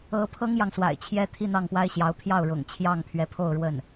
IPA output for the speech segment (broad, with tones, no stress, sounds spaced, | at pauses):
ɤ˧˥ pʰ ɤ˥ ŋ j ɑ˨ ŋ s w a̰˨˩ ɪ̯ t͡ɕʰ j ɛ˥ t̪ʰ i˥˧ n̪ ɑ˥˩ ŋ p w a˥ ɪ̯ ɕ j ɑ˧˥ ʊ̯ pʰ j ɑ˥˩ ʊ̯ ɻ ʊ̰˨˩ ŋ t͡ɕʰ j ɑ˥˩ ŋ pʰ ɥ ɛ˧˥ pʰ o˥˧ ʊ̯ ɻ w ə˥˩ n